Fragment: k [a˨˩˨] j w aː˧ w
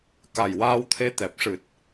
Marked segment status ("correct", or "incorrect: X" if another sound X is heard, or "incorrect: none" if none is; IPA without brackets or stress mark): incorrect: a˨˩